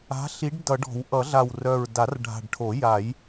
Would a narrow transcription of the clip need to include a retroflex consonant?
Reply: yes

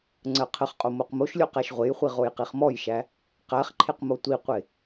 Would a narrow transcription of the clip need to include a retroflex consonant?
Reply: no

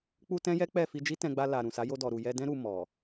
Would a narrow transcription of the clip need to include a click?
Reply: no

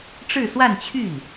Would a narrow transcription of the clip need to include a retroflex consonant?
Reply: yes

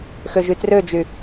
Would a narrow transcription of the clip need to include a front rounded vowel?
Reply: yes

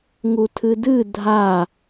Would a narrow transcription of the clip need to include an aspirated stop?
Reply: yes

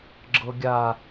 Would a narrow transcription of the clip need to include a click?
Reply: yes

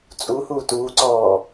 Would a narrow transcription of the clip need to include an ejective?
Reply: yes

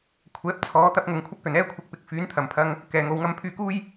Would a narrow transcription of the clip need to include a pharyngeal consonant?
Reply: no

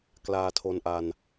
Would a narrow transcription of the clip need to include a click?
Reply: no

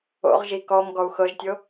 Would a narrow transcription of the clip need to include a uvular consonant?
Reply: yes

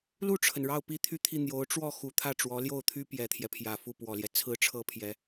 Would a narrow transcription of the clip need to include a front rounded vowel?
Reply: yes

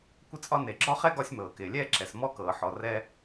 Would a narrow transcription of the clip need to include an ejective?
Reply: yes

